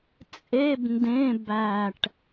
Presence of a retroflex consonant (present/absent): present